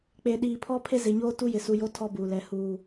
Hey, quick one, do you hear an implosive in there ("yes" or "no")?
yes